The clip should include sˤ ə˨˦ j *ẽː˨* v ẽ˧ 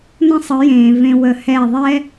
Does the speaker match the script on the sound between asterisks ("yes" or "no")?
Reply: yes